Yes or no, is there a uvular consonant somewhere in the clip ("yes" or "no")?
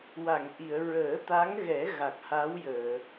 no